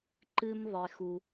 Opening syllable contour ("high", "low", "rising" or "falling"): high